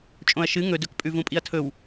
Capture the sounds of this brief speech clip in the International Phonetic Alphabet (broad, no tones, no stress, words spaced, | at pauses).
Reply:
t͡ʃʼõɐ̯ʃɨ ŋɵ dɵkpʼʉvũpʼiɐ̯ tʰɵw